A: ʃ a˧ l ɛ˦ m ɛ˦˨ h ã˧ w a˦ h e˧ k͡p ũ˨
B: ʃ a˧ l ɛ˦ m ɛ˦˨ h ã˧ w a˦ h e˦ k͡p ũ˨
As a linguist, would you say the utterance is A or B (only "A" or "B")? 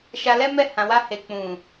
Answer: A